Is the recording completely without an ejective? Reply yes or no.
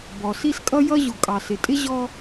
no